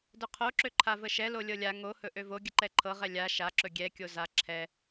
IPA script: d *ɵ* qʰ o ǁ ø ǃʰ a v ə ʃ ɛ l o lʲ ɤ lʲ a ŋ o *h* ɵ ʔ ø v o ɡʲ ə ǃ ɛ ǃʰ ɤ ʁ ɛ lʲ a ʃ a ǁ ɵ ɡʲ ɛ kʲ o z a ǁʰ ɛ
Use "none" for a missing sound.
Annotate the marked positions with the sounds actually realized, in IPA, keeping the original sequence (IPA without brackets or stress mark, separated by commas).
ɵ, h